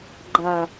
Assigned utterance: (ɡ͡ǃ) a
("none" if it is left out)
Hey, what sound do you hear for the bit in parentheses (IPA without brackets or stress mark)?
ɡ͡ǃ